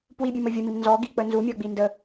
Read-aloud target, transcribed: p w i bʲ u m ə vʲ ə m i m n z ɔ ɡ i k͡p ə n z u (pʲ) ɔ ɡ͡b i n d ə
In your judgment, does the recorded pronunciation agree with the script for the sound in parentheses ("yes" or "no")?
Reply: no